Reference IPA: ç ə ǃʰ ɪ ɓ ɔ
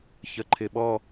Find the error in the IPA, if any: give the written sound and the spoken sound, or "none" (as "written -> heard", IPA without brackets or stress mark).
none